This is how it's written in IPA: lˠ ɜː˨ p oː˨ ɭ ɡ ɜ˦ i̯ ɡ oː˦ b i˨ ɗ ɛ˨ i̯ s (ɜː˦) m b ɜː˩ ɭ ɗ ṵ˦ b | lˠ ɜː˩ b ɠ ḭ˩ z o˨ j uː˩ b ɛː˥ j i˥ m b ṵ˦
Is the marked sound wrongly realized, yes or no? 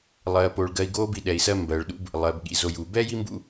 yes